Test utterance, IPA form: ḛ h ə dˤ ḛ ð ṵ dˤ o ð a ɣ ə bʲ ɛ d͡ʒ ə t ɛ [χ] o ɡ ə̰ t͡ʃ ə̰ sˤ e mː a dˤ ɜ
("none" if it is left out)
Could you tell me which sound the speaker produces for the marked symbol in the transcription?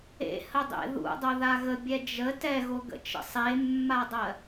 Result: ɣ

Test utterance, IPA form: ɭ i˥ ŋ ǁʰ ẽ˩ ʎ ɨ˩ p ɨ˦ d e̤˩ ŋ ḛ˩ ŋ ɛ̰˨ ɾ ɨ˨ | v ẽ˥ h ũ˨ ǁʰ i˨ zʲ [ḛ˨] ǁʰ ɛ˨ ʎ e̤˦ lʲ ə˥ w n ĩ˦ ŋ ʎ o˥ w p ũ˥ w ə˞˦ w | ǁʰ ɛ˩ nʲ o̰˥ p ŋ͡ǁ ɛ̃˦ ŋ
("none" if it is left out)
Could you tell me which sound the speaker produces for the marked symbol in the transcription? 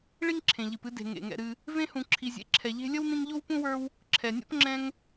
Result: ḛ˨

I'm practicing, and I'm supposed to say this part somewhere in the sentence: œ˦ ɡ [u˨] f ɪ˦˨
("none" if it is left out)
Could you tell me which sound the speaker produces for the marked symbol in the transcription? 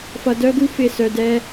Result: u˦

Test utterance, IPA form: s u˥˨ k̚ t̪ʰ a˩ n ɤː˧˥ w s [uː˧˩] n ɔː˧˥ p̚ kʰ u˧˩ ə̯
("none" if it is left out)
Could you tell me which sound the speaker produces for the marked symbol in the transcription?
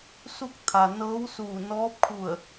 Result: uː˧˩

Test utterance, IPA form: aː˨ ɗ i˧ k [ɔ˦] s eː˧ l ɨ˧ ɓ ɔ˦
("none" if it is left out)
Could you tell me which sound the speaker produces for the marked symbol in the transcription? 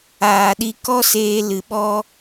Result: ɔ˦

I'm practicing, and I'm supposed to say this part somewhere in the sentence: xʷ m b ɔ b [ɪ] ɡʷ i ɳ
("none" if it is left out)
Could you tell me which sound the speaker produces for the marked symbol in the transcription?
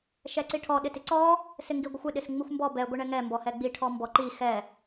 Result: ɛ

